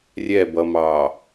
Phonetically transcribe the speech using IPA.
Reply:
rʲ ɛ b ʌ m ɑ

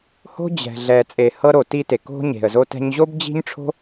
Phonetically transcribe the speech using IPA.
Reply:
h o̤˥ d͡ʑ ɛ̤˧ ɮ ɛ˧ t͡sʼ e˧ h ɤ˥ ɾ o˧ t i˥ t e˧ k o̤˥ ɲ e̤˧ ə̯ z o˥ t ɛ̤˥ ɲ ʑ o˥ b d͡ʑ i̤˥ ɲ ʈ͡ʂʰ o̤˥

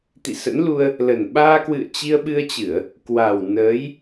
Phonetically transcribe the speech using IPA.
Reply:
t̪ ḭ˧˨ s ə̰˧˥ n l u˧ ə̯ | l ə˨˩ n ɓ aː˧ k w ɨ̰˧˨ ə̯ t͡ɕ i˧ ə̯ ɓ ɨ˧ ə̯ t͡ɕ ɨ˧˩˨ ə̯ | k w a˨˩ w n əː˨˦ j

